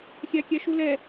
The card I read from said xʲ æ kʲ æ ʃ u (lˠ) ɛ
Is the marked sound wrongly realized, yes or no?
yes